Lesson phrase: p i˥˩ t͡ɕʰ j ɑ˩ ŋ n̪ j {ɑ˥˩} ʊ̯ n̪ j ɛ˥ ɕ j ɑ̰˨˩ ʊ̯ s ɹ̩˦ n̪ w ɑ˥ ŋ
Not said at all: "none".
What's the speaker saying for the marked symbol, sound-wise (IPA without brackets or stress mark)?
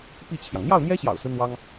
ɑ˥˩